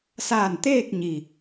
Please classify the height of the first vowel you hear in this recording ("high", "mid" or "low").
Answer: low